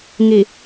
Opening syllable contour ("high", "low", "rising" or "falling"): low